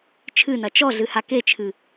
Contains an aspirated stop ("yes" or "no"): yes